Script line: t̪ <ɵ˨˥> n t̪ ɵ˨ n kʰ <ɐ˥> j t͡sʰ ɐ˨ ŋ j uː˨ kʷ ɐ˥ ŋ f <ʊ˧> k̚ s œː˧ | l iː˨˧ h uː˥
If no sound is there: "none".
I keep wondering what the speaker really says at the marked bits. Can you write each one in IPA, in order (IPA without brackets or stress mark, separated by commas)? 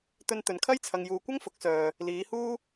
ɵ˧, ɐ˥, ʊ˨˥